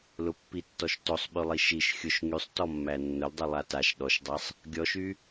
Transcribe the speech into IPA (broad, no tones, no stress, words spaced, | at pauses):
lʊpːitːɔʃ tosˤɓylˠi ʃiʃ xʲʊʃ ŋysˤtɔmːæ nːʊldˤylˠa taʃ ɗɔʃdˤasˤ | ɡʲɔʃy